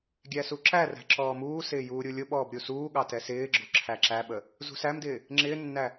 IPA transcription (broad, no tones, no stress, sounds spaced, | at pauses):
ɡʲ æ s u ǁ æ r æ̤ ǁ ɔː m uː s ɪː j uː ɾʲ u lʲ ʊ ɓ ɔː b ɾʲ u s uː ɠ ɑ t ɛ s ɪː ɡ͡ǁ ʊ ǁʰ æ ǁ æ ɓ ə | z ṳ s æ m d ɪː | ŋ͡ǁ ɪː nː æ